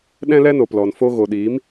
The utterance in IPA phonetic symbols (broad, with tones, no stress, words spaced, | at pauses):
ɗɛ̃˦lɛ˦noː˨plɔ˨n fo˧ ɣo˨ɗiː˨˦m